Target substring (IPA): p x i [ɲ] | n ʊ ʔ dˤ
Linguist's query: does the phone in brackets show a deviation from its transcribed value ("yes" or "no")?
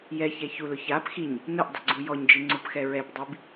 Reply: no